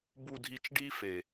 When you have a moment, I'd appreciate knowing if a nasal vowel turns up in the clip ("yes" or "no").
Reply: no